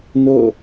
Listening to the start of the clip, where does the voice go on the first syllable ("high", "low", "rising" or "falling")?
falling